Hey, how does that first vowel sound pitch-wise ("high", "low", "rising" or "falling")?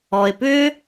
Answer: low